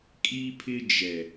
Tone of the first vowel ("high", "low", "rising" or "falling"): high